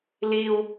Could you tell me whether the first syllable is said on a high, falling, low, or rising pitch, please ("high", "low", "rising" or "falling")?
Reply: high